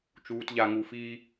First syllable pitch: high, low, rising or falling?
high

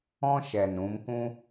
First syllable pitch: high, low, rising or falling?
high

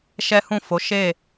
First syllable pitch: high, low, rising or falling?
high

